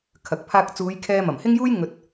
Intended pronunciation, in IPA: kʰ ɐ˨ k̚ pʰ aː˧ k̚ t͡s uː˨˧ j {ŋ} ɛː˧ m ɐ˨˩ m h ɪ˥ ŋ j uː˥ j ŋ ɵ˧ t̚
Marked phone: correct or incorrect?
incorrect: kʰ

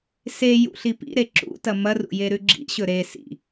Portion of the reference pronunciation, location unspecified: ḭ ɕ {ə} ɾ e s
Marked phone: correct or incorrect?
incorrect: ɵ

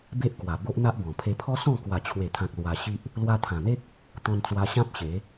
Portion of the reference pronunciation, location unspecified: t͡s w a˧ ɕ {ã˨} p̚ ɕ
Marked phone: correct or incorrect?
incorrect: ã˦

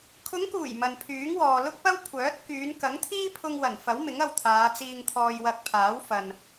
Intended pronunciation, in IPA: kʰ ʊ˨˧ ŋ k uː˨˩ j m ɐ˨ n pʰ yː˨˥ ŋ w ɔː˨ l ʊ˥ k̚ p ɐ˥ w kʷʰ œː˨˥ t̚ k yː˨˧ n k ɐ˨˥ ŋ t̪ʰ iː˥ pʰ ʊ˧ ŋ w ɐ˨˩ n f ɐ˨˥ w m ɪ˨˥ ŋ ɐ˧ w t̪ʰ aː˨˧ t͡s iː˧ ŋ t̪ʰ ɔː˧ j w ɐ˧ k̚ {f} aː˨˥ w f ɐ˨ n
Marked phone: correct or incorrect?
incorrect: pʰ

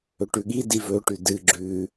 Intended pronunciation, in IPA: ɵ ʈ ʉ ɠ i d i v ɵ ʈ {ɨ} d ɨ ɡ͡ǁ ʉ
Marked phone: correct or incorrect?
incorrect: ʉ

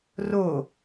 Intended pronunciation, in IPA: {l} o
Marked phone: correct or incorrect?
incorrect: r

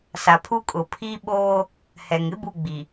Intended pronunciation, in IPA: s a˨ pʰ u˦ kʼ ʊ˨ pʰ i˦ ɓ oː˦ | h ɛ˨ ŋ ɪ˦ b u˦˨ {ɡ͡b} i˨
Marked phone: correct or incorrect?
correct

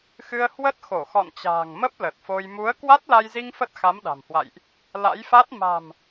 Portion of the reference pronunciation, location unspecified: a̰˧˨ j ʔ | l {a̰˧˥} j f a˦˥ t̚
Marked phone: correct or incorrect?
correct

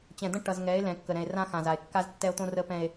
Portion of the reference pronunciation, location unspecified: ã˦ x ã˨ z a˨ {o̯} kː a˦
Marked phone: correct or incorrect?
incorrect: e̯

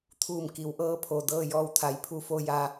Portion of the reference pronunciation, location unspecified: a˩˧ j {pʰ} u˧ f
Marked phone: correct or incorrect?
correct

